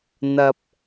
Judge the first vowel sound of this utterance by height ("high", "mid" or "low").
low